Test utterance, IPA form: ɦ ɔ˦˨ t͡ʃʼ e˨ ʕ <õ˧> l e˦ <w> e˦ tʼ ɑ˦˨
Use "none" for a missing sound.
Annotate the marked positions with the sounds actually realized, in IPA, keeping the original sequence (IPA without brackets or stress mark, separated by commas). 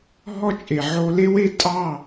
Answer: o˧, w